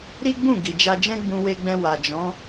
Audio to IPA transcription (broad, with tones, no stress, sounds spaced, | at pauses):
ɾ i˦ ɡ͡b ũ˦˨ ɡ i˨ d͡ʒ a˧ d͡ʒ ɛ̃˦ ɡ͡b ũ˧ w e˧ ɡ͡b ɛ̃˧ w a˨ d͡ʒ ɔ̃˨˦